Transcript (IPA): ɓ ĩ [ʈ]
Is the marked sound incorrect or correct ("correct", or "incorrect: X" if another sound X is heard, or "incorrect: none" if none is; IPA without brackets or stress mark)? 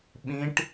correct